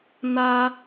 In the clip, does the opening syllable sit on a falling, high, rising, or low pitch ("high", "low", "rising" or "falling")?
high